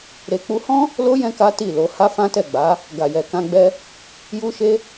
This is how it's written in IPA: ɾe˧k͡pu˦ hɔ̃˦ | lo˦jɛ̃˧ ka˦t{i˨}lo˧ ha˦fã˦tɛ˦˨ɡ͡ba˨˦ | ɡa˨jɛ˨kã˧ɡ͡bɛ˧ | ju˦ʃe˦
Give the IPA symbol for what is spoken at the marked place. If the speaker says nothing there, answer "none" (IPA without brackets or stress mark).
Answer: i˦˨